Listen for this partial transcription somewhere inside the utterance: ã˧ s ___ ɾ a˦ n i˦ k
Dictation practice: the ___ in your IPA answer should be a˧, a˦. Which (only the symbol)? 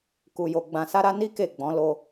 a˦